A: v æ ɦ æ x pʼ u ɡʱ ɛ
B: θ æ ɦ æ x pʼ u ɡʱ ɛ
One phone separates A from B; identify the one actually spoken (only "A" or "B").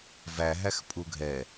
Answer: A